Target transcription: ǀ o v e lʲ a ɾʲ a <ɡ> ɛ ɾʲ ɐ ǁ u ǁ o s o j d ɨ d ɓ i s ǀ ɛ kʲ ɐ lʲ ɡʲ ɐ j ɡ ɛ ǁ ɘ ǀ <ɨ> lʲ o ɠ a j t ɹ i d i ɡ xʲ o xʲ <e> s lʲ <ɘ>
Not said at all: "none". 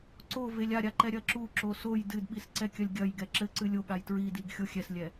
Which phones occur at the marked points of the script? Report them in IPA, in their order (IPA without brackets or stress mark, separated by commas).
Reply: ǃ, ɨ, ɛ, ɛ